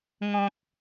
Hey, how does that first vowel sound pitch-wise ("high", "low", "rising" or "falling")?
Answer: low